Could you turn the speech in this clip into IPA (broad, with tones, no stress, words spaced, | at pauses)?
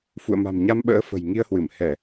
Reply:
fṵ˧˨ə̯ma̤˨˩mɲa˧mɓə̰ː˧˥ fə̤˨˩jŋi˧ə̯hwɨ˧˩m hɛ˧˩˨